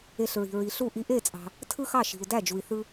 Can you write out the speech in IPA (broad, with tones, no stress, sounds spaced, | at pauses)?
e˧ ɬ ɹ i̤˩ ɹ i˩ ɬ u˥˩ ʔ i˧ ʔ e˥˩ t͡sʼ ɑ̤˩ | tʰ ɯ˥ x ɑ˥˩ ʃ i̤˩ u̯ d æ˥˩ d͡ʒ u˩ i̯ θ ɯ˧